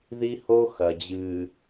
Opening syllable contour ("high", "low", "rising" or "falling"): high